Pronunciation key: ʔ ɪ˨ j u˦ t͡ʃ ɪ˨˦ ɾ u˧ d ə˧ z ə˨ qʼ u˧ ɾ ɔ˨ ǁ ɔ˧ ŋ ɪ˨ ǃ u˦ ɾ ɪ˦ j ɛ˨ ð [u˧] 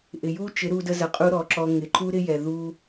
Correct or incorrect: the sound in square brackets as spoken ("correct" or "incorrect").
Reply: correct